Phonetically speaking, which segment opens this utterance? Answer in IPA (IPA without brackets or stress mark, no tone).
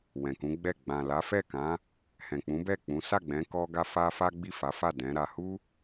w